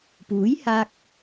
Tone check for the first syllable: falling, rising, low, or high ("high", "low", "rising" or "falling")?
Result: rising